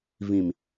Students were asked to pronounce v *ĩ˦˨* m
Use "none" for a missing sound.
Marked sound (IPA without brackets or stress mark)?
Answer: ĩ˨